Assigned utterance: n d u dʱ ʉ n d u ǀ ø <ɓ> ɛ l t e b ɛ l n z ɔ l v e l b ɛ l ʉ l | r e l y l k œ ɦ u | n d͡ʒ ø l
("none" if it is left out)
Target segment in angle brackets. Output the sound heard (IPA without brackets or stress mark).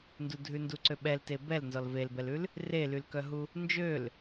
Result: ɓ